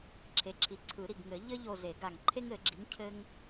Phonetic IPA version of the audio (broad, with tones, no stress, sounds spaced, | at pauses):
ǁʰ e˩˥ ǁʰ i˩˥ ǀʰ ɯ˨˩˦ ɾ i˧˩ ɡ ŋ ɘ˨˩˦ ʎ ɘ˥ ʎ o˧˩ z e˨˩˦ ɡ a˧˩ ŋ ǃʰ e˥ ŋ ɘ˨˩˦ ɡ͡ǁ i˩˥ ŋ cʰ ɘ˥ ŋ